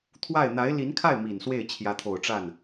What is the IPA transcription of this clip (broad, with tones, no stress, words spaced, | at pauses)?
t̪ʰwa˥˩ɪ̯ n̪a˧˥ɪ̯li˧˥nkʰa˥˩ɪ̯ mi˨˩nswe˥˩ɪ̯ t͡ɕʰjä˧˥t̪ʰo˨˩ʊ̯ʈ͡ʂa˥˩n